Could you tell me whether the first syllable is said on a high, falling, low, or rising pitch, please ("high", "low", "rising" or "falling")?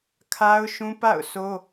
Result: high